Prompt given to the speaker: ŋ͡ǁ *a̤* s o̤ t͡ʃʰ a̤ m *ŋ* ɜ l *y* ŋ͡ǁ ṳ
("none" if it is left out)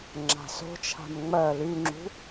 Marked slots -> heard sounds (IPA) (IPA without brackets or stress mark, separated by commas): a̤, ŋ͡m, y